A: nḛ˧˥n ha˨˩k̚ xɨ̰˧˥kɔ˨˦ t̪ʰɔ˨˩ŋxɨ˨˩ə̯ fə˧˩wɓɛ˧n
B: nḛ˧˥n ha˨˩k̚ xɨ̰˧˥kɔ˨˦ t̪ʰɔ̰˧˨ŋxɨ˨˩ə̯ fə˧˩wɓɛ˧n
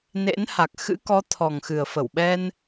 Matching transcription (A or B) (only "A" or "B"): A